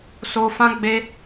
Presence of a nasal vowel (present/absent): present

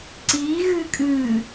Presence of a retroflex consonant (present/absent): absent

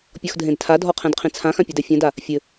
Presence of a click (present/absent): absent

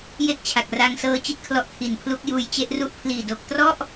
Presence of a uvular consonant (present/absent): absent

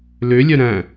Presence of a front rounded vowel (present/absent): present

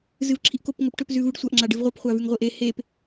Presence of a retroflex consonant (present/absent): present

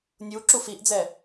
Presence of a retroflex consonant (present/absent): absent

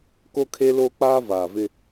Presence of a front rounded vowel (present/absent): absent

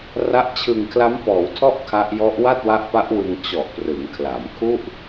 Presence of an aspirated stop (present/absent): present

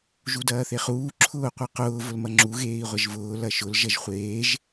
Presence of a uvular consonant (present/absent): present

